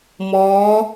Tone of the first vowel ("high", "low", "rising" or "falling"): rising